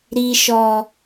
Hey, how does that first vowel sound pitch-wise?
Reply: low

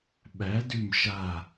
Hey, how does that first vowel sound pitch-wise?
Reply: rising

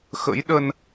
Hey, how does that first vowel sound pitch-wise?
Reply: rising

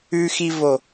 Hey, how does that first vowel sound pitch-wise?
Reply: low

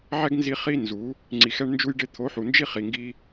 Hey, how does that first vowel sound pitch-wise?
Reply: high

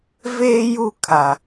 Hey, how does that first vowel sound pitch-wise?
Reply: high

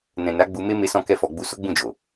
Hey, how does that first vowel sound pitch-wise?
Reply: low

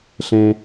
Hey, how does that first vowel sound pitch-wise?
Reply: high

